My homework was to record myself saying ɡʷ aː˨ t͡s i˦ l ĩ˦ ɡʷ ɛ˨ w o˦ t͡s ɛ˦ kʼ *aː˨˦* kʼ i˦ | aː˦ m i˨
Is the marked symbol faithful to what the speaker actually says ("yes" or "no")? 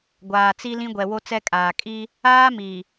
no